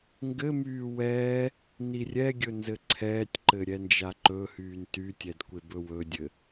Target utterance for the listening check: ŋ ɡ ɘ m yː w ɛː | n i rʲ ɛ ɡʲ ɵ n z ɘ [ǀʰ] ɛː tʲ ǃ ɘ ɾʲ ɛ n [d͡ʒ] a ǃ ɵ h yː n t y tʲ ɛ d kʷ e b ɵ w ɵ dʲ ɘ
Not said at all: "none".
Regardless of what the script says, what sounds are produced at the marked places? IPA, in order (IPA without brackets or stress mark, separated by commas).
ǀʰ, d͡ʒ